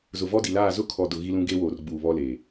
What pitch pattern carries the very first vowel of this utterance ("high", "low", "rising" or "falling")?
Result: low